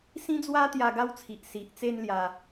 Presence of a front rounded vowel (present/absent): absent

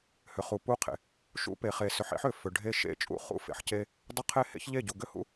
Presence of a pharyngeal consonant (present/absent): present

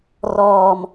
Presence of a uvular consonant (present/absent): absent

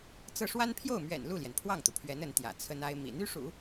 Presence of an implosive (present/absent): absent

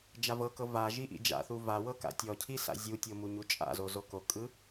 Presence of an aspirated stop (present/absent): present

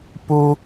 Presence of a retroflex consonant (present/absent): absent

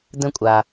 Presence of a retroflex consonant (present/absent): absent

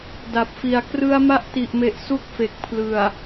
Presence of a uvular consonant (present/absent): absent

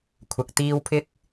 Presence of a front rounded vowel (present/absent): absent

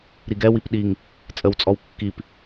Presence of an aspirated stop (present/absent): absent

